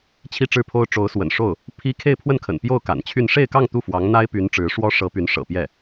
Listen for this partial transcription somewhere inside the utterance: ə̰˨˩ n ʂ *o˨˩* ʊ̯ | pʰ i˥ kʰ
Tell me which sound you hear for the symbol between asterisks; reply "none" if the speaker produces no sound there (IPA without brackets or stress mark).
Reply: o˥˩